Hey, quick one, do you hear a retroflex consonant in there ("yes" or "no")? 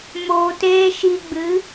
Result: no